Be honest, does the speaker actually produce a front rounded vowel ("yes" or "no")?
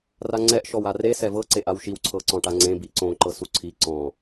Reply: no